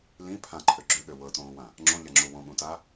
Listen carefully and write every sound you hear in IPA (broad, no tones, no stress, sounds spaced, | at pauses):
l ĩ pʰ ã ǃʰ ø ɡ͡ǁ ø ɠ ø w ɤ t õː w ã | ŋ͡ǁ õ ʎ a ŋ͡ǁ u w õ ɠ ũ t a